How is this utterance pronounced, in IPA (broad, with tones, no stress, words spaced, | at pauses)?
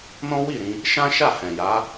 nɔ̃˦ wi˦˨ɾĩ˧ | ʃã˦ʃa˦˨hɛ̃˨ja˨˦